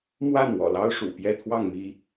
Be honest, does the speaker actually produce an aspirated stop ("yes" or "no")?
yes